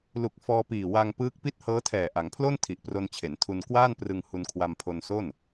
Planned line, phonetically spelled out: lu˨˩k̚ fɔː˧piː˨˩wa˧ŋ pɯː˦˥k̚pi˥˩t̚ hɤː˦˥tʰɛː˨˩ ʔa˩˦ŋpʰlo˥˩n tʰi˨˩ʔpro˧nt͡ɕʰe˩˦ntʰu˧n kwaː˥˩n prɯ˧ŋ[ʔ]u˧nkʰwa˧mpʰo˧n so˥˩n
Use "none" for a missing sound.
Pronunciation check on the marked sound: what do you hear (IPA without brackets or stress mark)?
h